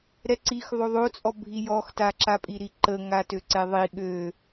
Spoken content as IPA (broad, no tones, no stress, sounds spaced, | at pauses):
ɾ ɛ ǀ i x ðˤ o ðˤ o t͡sʼ ɔ bʱ i j ɔ x t a ǁ a pʼ i ɾ i ǃ ə ŋ a t ø ǀ ɛ ðˤ i ɠ ø